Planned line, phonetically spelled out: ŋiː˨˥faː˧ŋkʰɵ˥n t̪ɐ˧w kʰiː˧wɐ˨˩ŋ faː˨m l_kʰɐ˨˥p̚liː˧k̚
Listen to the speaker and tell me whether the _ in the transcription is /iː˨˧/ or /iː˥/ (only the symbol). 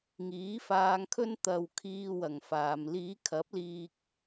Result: iː˨˧